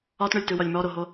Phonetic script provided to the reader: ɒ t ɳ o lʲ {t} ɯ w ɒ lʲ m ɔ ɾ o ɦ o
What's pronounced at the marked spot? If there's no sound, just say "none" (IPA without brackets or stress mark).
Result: t